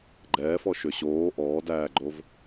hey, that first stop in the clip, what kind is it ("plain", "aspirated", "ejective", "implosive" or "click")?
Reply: click